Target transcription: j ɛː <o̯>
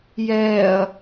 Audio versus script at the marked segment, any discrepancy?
yes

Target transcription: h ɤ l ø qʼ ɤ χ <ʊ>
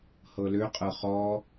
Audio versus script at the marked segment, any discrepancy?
yes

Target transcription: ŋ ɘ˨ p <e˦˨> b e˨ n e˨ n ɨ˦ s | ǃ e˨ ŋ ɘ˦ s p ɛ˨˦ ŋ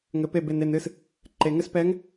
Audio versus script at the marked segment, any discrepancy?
no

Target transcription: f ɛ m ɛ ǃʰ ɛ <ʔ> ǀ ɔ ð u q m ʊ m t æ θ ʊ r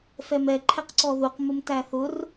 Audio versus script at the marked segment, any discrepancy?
yes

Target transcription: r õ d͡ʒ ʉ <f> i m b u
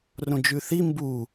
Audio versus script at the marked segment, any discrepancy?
yes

